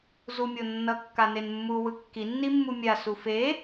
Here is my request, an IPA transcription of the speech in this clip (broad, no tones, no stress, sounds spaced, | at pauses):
z u mʲ o nː ʌ kː a n e n mː u w ɯ kː i nː i mː u mʲ a s u f e